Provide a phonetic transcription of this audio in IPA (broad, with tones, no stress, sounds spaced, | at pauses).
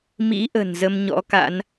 m ḭ˧˥ ʔ ə̤˨˩ n z ə˧ m ɲ ɔ̰˧˥ k a̰˧˥ n